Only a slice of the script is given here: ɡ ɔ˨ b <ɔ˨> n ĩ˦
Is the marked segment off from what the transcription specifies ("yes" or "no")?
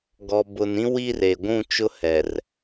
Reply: yes